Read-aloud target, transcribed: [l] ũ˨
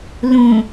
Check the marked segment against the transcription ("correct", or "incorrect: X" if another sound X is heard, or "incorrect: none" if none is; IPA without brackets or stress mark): correct